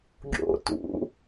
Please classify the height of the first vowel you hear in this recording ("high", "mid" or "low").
mid